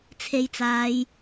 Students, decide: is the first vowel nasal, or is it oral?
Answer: oral